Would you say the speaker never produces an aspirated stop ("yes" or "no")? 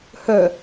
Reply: yes